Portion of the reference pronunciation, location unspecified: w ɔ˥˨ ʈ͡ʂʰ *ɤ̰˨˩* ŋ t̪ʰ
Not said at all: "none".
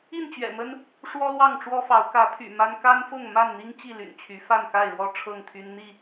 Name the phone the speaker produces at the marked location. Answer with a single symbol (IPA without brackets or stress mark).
ɤ˥˨